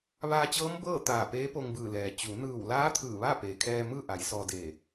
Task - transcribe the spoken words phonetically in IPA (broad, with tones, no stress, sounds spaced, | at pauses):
ʋ aː˧ t͡ɕ ɤː˧˥ m b ɤː˥˨ t̪ aː˧˩ p eː˧˥ p o˧ ŋ b ɯː˧˩ l ɛː˩ t͡ɕ u˩˧ n ɯː˧˩ w l aː˧˥ t̪ʰ ɯː˧˩ ʋ a˥˨ p eː˩ kʰ ɛː˧ m ɯː˥˨ ʔ a˩˧ j s ɔː˧ d e˧˩